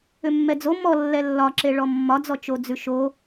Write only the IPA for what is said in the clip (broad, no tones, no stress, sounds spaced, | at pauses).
ʏ mː ɛ d͡z o m ɔ lː ɛ lː ɒ ǁ e ɭ ɔ mː ɒ d͡z ɔ t͡ʃ o d͡z ʉ ʃ o